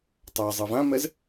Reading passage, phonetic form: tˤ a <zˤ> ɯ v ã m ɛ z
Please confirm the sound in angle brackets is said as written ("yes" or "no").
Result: yes